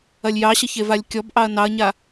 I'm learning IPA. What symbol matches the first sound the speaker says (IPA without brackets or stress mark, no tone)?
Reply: ɐ